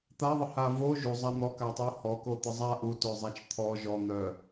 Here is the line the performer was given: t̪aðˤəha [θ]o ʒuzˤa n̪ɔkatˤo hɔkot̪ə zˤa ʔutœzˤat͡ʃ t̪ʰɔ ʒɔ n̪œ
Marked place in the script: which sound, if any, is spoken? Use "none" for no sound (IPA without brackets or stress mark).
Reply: v